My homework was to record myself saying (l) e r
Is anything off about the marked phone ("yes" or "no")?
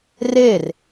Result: yes